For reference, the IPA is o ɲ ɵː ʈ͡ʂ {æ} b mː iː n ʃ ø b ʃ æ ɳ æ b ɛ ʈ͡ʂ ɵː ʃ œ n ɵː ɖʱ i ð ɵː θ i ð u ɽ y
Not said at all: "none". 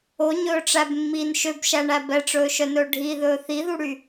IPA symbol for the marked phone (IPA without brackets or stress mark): æ